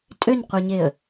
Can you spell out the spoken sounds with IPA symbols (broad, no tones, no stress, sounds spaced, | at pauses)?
tʼ ø n qʷ ɛ ɲ e ə̯